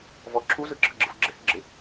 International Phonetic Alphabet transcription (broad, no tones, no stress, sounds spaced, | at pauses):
v ɔ ǁʰ u z ɯ ǁʰ ɯ ɡ͡ǁ ɯ f ɡ͡ǁ ɪ h ɪ ɡ͡ǁ ɪ